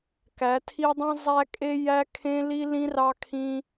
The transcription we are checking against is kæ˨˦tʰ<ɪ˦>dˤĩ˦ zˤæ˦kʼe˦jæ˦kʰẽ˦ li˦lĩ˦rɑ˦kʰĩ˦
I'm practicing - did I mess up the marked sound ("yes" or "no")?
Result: yes